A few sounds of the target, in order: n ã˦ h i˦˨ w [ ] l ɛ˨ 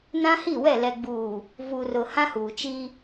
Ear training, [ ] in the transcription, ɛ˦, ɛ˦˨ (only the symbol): ɛ˦˨